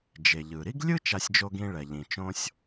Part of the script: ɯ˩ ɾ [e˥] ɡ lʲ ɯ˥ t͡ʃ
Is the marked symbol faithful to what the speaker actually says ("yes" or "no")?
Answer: no